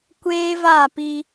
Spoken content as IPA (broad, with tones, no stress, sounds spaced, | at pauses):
kʷ eː˦ v a˦˨ p i˦